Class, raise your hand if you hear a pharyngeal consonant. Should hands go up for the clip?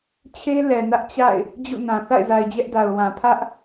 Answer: no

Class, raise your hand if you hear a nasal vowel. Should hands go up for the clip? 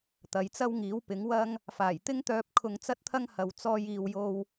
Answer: no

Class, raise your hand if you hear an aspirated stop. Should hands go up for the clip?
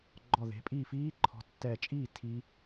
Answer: yes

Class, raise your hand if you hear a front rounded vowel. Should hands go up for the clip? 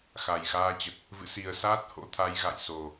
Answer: no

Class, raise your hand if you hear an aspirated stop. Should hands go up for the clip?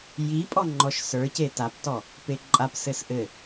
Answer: no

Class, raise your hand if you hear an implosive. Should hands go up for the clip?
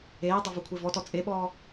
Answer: yes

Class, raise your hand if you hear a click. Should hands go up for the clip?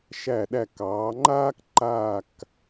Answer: yes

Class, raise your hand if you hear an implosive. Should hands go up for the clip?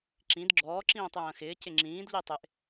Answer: no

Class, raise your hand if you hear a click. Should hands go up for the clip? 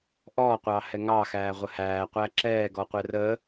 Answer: yes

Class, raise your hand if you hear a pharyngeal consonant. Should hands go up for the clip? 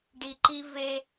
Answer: no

